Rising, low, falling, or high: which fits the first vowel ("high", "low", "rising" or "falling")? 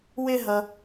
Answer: high